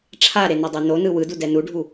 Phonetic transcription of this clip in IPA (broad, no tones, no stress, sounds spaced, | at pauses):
ʈ͡ʂʰ a ɾ e n ɛ dˤ i n o n ɯ w ɯ d u d ɛ n u ɖʱ u